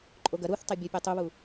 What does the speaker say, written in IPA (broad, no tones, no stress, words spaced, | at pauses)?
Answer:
ǃʼoɡɐ ɾuθtˤebʲo pʲɒtˤuβu